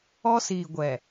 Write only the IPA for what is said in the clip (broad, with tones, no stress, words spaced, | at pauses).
ɔ˦siː˨ ɡʷɛ˨